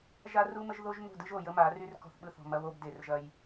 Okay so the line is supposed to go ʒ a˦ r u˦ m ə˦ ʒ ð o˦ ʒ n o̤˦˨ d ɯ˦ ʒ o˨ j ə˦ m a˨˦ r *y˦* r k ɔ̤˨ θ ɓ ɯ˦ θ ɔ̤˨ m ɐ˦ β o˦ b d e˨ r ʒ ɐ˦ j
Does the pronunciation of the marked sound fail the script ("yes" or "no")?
no